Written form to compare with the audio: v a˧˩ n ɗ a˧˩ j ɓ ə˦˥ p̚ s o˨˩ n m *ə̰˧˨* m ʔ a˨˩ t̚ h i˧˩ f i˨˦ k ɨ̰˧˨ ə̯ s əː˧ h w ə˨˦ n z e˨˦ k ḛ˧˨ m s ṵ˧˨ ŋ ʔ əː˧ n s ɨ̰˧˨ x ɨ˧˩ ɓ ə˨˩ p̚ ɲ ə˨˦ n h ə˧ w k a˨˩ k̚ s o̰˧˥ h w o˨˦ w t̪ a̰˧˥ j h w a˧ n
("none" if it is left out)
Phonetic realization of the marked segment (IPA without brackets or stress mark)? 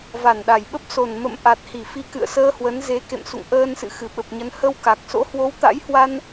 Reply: ə̰˧˨